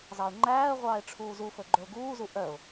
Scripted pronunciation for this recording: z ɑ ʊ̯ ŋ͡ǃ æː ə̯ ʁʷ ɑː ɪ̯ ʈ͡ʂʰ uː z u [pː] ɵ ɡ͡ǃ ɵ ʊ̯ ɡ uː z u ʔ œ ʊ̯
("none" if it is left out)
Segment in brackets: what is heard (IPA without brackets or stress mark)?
f